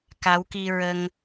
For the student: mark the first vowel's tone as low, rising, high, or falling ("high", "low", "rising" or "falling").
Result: rising